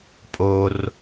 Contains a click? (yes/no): no